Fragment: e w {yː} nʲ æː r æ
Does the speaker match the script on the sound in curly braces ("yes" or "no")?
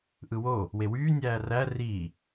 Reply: yes